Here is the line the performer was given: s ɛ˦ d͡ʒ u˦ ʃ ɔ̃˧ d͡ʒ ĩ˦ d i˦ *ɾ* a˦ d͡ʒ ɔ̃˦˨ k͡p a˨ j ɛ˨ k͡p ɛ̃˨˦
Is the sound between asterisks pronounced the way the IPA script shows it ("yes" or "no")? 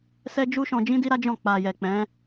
yes